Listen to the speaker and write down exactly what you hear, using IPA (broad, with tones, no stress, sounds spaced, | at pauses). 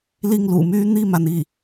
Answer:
l i˥˩ ŋ l ṵ˨˩ m y˥ n̪ i˥˩ m a˩ n i˥˩